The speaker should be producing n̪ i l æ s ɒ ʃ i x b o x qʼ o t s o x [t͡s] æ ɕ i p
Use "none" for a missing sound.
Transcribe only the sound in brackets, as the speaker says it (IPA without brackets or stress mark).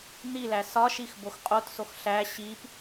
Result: ɬ